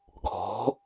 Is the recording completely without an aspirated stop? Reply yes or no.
no